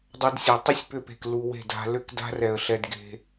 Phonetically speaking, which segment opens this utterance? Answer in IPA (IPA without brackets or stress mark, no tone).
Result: dˤ